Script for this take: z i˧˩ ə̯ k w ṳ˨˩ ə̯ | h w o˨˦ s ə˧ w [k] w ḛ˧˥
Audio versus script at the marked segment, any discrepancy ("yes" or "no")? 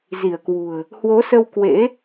no